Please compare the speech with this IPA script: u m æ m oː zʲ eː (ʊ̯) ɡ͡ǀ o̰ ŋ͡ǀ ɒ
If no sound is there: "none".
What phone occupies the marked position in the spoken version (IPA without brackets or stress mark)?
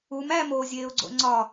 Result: ʊ̯